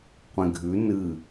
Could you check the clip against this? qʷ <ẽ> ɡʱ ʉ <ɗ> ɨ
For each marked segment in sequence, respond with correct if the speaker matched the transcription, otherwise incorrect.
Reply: correct, incorrect: n

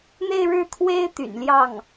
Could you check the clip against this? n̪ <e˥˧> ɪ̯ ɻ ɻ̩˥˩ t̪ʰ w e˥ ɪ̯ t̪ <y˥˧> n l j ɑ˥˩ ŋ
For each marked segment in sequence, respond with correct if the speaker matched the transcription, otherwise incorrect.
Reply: correct, incorrect: y̰˨˩

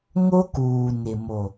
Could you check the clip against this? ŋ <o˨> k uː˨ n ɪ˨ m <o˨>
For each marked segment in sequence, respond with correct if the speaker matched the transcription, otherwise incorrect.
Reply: incorrect: o˦, correct

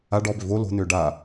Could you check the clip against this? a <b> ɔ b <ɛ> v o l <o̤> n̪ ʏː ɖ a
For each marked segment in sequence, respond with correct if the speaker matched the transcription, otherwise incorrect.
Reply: incorrect: ɖ, incorrect: ʏ, correct

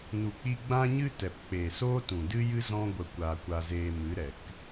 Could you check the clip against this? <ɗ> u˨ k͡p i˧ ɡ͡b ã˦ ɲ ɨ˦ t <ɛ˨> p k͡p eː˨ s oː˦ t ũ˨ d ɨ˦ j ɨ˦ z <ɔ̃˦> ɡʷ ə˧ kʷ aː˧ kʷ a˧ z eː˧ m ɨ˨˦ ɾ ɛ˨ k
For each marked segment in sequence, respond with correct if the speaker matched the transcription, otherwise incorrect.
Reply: incorrect: n, correct, correct

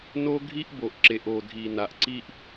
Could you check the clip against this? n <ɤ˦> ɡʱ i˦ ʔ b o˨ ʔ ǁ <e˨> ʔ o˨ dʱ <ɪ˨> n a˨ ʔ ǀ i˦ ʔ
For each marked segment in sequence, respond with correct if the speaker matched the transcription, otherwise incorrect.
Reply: incorrect: o˦, correct, incorrect: i˨

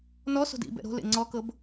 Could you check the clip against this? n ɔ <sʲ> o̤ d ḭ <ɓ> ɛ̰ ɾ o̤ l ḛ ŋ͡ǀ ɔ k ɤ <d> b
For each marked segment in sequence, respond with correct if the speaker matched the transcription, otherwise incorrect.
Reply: incorrect: s, incorrect: b, incorrect: none

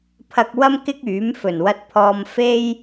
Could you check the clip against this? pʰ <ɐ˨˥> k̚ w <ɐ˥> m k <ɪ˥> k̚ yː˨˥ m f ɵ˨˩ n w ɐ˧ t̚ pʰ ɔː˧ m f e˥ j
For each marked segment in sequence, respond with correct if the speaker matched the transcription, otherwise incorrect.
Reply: incorrect: ɐ˧, correct, correct

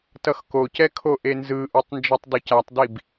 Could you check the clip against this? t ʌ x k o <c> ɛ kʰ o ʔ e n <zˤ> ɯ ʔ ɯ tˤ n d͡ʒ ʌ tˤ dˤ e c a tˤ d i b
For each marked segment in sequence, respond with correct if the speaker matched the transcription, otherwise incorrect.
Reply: correct, incorrect: z

